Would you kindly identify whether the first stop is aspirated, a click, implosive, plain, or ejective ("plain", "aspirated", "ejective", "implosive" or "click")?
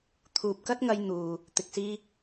aspirated